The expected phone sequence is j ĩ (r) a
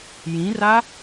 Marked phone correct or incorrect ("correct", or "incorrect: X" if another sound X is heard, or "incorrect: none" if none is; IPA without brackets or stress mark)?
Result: correct